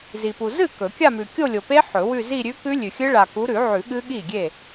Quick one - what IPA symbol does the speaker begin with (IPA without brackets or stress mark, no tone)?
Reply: z